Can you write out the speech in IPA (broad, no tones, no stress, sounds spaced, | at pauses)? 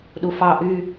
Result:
ɗ u f ɑ ʔ y